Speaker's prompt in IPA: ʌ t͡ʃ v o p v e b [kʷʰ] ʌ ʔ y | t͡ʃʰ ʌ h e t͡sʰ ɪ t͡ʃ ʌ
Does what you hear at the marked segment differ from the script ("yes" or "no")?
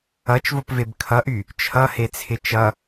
yes